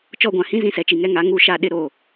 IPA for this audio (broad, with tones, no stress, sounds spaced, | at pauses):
t͡ʃ ɔ˦˨ ɡʷ ã˨ h ĩ˦ z ĩ˦ s ɛ˨ t͡ʃ i˨ ŋ ɛ˦ ŋ a˨˦ ŋ u˦˨ ʃ a˦˨ ɗ ɪ˦ ɾ o˦˨